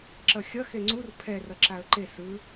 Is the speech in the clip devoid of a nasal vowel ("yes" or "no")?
yes